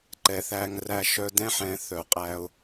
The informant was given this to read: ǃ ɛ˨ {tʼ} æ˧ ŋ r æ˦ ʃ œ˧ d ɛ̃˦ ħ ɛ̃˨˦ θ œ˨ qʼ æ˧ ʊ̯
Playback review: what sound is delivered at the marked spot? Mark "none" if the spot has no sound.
θ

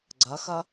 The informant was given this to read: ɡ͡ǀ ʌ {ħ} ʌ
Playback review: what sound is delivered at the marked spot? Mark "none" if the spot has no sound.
x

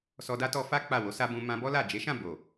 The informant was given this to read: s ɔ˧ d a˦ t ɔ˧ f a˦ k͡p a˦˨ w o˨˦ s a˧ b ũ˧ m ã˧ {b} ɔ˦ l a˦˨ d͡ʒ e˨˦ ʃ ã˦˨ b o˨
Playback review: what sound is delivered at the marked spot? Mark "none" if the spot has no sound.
b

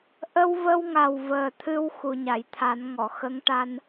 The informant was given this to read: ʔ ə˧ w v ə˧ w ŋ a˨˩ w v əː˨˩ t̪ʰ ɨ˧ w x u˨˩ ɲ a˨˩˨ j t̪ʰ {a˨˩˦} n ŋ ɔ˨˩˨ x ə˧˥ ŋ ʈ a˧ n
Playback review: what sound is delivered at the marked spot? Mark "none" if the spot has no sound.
a˨˩˦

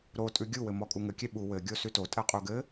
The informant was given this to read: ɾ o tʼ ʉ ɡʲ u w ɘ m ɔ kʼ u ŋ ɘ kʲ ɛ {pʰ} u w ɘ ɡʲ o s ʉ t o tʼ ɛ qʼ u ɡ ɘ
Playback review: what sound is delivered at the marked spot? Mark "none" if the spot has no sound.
ɓ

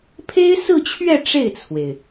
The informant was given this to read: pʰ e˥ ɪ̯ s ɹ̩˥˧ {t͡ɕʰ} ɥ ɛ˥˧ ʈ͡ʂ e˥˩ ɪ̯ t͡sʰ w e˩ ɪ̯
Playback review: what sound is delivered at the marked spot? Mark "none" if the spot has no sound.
t͡ɕʰ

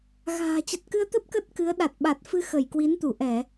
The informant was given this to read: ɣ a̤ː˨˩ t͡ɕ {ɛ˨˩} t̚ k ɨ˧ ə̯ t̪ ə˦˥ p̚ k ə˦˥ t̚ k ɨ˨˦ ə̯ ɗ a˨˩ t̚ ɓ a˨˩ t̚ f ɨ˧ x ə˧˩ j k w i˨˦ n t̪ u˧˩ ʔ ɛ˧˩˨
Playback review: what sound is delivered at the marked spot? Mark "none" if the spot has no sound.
ə˨˩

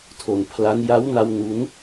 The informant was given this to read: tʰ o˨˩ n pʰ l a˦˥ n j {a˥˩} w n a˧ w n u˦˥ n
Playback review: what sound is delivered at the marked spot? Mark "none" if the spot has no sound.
a˦˥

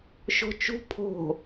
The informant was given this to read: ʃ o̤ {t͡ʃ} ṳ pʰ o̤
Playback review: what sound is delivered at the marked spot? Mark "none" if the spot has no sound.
t͡ʃ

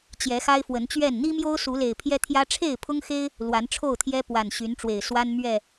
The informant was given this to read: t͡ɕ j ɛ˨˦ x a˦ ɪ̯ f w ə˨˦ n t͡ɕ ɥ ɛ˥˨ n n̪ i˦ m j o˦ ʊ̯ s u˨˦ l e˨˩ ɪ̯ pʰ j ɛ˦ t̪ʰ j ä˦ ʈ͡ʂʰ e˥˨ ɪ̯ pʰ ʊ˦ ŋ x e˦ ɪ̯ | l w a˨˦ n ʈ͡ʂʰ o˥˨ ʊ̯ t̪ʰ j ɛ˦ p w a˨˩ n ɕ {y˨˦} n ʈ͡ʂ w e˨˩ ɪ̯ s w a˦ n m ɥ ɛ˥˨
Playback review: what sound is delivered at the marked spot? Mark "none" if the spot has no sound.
y˨˦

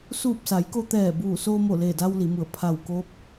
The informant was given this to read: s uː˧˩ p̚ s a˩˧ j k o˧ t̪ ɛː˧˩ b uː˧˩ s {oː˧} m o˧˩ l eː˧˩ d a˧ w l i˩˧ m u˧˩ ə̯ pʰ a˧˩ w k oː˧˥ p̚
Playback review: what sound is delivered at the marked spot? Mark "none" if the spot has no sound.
oː˧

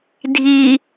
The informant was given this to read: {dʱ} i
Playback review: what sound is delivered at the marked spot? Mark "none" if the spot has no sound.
dʱ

